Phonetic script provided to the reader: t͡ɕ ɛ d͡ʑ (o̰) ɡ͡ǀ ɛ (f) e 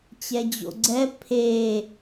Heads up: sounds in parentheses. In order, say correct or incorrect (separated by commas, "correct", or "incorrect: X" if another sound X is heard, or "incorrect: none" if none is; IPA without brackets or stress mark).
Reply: correct, incorrect: pʰ